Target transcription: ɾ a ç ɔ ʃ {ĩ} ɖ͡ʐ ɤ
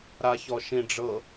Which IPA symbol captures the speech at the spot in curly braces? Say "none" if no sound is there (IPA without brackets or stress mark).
ĩ